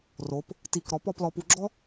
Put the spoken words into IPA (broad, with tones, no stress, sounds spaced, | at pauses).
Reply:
r o˩˧ p | t i˧˩ k ɾ ɔ˧ p ɔ˥˧ p l ɔ˧ p u˧ ɡ͡ǁ ɔ˥